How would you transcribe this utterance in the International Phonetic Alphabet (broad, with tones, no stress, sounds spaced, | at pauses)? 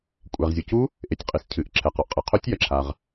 kʷʼ ɛ˩ ʁ zʲ u˩ c u˦˥ | ʔ e˩ tʲ qʼ i˩ s cʰ ɨ˩ ʔ ǁʰ ɛ˩ q ɔ˩ ʔ qʼ ɨ˩ qʰ o˦˥ tʲ j ɐ˩ ǁʰ a˩ ʁ